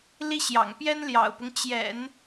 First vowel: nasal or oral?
oral